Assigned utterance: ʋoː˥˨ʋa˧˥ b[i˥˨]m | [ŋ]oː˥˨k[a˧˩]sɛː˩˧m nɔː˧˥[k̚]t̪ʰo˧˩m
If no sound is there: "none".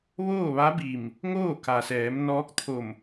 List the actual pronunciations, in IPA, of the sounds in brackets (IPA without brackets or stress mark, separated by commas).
i˧˩, ŋ, a˩, k̚